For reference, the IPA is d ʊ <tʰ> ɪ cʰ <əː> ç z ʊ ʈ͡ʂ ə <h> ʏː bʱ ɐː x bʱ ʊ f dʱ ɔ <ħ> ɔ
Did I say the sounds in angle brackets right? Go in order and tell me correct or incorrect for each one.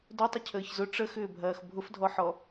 incorrect, correct, incorrect, correct

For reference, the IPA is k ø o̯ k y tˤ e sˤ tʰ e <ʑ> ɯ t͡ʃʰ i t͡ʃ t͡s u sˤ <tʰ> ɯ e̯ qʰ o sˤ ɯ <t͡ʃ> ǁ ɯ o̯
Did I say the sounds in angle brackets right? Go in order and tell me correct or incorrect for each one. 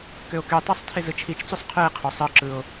incorrect, incorrect, incorrect

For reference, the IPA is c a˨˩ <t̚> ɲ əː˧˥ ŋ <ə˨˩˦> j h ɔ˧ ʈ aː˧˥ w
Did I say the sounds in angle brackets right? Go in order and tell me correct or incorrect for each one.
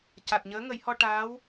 correct, correct

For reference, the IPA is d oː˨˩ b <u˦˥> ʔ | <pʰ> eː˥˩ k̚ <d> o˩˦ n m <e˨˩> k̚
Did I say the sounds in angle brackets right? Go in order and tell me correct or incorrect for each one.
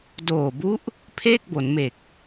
correct, correct, incorrect, correct

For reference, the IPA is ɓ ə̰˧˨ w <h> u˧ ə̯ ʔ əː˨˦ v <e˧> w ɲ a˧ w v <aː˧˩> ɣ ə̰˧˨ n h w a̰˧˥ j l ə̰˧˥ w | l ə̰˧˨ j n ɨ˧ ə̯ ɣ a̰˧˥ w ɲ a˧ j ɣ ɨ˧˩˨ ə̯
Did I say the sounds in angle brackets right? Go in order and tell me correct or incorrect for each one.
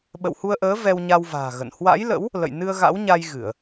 correct, incorrect, incorrect

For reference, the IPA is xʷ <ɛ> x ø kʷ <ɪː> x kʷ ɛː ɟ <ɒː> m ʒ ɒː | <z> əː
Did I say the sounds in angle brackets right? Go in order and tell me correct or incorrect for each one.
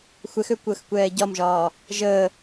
correct, incorrect, incorrect, incorrect

